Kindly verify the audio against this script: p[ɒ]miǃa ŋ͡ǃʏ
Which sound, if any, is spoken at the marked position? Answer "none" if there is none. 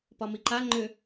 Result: ɒ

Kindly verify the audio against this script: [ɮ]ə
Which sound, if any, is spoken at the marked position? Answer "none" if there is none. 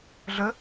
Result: ɮ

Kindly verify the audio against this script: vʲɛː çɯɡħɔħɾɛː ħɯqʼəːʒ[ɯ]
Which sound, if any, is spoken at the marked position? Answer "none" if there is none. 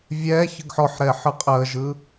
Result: ɯ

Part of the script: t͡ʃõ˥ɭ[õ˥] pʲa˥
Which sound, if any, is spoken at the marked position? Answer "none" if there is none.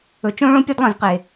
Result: õ˥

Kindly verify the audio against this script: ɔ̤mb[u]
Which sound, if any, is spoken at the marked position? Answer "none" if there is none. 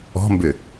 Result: ʏ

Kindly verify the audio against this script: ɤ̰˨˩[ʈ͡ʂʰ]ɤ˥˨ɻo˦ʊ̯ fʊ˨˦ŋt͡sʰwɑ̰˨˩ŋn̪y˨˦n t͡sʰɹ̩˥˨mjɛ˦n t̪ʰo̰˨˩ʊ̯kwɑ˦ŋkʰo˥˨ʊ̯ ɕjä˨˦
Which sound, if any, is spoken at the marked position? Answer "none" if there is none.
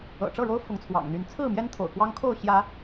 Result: ʈ͡ʂ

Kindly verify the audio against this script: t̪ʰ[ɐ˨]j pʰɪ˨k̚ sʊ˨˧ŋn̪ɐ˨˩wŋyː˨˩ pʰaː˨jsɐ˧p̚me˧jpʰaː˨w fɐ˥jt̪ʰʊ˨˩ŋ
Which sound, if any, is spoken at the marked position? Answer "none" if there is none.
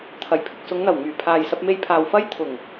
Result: ɐ˨˩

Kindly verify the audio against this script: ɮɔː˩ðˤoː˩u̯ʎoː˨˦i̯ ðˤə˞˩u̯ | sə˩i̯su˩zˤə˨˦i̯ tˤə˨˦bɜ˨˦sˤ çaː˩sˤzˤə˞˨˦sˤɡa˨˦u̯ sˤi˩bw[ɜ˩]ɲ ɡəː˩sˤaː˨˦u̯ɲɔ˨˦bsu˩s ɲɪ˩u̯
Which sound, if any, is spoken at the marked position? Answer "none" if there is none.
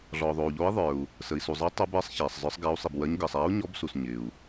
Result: ɜ˨˦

